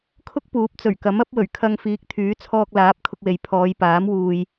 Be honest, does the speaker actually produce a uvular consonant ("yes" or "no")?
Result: no